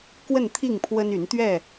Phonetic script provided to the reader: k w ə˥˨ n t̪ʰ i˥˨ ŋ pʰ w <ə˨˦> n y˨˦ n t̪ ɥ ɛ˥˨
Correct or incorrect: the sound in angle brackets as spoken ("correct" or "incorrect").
incorrect